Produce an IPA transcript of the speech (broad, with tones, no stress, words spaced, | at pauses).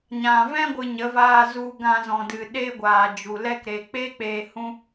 ɲã˨ vɛ̃˦ɡʷɨ˨ ɲə˨˦vaː˧ zu˧ɡã˧zɔ̃˨dɨ˨ ɗeː˦ɡʷaː˨d͡ʒu˨ lɛ˧kɾeː˨k͡pe˦ k͡peː˧hũ˦